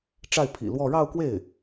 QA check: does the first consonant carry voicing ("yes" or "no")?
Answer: no